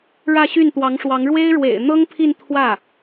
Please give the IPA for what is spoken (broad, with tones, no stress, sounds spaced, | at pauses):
ɻ ä˥˧ ɕ y˥˩ n t̪ w ɑ˧˥ ŋ ʂ w ɑ˧˥ ŋ ɻ w e˥ ɪ̯ ɻ w ḛ˨˩ ɪ̯ n̪ ɤ˥ ŋ pʰ i˥˧ n t̪ʰ w ä˥˩